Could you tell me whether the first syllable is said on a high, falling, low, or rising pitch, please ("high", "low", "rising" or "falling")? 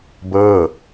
falling